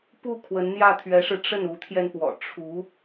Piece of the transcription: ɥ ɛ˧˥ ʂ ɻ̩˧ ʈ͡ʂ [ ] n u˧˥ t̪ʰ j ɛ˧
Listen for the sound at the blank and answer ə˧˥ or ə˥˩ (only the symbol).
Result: ə˥˩